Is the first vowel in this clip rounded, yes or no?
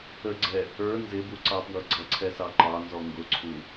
no